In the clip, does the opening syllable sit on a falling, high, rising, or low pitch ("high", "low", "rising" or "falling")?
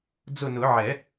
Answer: falling